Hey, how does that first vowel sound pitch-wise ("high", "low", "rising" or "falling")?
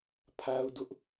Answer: high